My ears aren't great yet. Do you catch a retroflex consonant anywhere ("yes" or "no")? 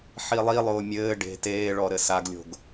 yes